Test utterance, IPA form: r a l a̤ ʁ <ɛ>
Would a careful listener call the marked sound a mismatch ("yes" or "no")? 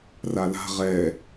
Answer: no